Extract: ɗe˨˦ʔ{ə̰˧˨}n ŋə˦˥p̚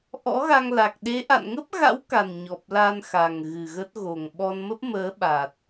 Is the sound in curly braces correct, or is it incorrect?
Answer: incorrect